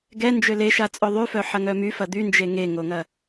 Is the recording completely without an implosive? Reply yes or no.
yes